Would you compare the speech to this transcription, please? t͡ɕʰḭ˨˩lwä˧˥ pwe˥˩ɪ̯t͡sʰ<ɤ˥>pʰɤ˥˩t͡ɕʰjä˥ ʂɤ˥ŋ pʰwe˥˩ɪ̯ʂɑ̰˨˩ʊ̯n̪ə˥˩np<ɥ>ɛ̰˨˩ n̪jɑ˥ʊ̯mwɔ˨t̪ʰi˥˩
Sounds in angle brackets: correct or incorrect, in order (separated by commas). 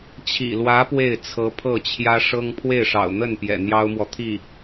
incorrect, incorrect